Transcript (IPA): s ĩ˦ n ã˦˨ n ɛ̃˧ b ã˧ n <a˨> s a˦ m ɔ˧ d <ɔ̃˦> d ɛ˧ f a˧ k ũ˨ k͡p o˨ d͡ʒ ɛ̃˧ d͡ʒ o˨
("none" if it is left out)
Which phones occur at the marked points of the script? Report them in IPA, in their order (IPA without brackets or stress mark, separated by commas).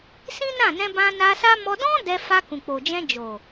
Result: a˧, ɔ̃˦